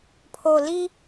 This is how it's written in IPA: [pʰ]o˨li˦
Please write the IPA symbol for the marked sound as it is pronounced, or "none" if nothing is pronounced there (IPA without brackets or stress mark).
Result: pʰ